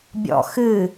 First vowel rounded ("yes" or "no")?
yes